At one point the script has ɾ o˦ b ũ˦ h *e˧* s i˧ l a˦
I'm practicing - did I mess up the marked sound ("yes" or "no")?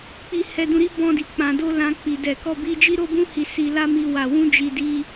yes